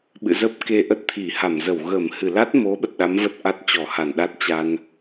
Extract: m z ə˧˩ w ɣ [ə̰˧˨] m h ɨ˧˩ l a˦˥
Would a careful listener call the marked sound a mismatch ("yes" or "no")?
yes